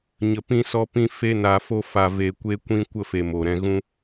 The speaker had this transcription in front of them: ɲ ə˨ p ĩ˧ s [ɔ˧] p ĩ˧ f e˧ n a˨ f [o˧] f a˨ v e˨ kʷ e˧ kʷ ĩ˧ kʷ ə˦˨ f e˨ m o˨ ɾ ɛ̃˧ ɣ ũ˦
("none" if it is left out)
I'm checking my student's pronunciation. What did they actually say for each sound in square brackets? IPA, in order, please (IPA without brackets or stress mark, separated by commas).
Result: ɔ˧, o˧